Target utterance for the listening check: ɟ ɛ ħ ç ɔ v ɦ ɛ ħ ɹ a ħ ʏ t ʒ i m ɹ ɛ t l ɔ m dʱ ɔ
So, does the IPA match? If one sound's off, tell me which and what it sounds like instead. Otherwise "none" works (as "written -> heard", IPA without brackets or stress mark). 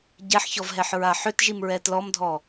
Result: none